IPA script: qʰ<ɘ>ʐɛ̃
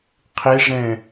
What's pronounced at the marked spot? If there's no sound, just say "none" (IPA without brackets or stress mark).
e